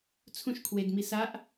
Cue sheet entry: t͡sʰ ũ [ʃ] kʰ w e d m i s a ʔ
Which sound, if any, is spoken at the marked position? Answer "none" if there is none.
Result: ʃ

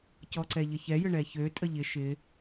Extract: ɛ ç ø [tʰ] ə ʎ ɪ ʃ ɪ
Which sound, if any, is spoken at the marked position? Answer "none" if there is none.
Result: tʼ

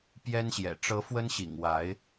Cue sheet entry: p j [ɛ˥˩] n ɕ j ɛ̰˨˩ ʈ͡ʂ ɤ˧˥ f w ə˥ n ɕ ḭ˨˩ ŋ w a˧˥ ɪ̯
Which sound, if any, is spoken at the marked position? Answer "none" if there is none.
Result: ɛ˥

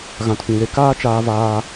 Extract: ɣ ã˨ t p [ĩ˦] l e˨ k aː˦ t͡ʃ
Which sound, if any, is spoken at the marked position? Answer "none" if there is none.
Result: ĩ˨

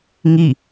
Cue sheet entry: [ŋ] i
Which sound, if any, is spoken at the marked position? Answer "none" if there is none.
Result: ŋ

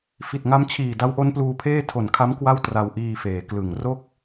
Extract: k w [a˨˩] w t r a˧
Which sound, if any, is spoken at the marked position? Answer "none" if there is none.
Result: a˥˩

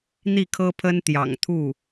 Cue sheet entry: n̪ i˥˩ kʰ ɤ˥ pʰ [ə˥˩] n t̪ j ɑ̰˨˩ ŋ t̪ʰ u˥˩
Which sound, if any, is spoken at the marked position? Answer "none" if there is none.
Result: ə˥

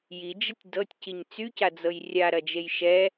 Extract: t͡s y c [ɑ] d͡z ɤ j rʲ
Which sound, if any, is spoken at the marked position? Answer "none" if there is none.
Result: a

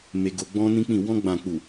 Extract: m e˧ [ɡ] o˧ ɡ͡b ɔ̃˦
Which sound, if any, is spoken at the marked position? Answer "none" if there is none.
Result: ɡ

